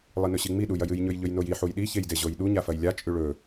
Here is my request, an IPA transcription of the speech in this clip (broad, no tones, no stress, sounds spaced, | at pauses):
lˠ i n ɵ ɕ i ŋ͡m i ɗ u j ɐ j ɨ j ɲ ɵ j ʎ ɵ j n o j i ħ u j ɗ i ç e j d e ʑ o j ɗ u ɲ a f ɐ j lʲ a t͡ʃʼ ʉ ɭ ɵ